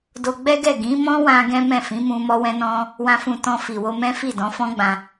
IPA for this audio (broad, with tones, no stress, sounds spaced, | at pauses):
d o˧ ɡ͡b ɛ˦ ɡ ɛ˦˨ ɡ ĩ˨˦ m ɔ̃˦ w ã˧ ɡ ɛ̃˦ m ɛ̃˦˨ f ĩ˨˦ m ũ˧ m ɔ˧ w ɛ̃˧ n ɔ̃˧ | w ã˨ f ũ˨ t ɔ̃˧ f i˨ w o˧ m ɛ̃˦ f i˦˨ d ɔ̃˨˦ f ɔ̃˦ ɡ͡b ã˧